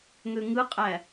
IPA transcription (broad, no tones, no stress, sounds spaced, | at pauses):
ŋ ø ŋ ɯ qʼ æ